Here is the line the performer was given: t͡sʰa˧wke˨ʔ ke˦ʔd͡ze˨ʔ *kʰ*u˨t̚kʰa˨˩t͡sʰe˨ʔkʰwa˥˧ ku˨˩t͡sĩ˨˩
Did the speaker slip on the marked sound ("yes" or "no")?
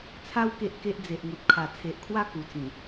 yes